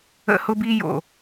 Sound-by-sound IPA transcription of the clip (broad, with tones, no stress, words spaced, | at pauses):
ə̰˧hʊ˧bi˧jo̰˨